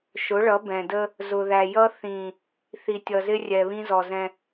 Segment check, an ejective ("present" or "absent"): absent